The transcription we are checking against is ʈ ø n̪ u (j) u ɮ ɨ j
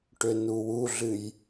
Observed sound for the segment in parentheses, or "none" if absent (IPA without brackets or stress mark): w